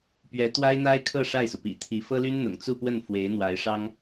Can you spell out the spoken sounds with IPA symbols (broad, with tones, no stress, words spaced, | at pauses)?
pɥɛ˧˥t̪wa˥ɪ̯n̪a˥ɪ̯kʰɤ˥˧ ʂa˥˩ɪ̯su˩pḭ˨˩ t̪ʰi˧˥ fɤ˥ly˥n n̪ʊ̰˨˩ŋt͡su˥˧pwə˥˩n fwe˧˥ɪ̯n̪wa˧˥ɪ̯ʂɑ˥ŋ